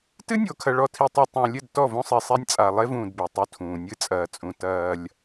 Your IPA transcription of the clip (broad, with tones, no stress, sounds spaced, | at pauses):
t ɨ˦ nʲ o˨ kʰ ɐ˨ ɭ ɔ˨ tʰ i˨ tˤ o˨ tˤ õ˨ lʲ ɘ˦˨ d t ɔ˦˨ v õ˦ sˤ i˨ sˤ ɛ˦ nʲ t͡sʼ a˨ lˠ e˦ v ũː˨ d b e˨ tˤ u˦ tʰ ũː˨ nʲ ɨ˦ t͡sʼ ɐː˨ t͡sʼ ũ˨ t ɐː˦ lʲ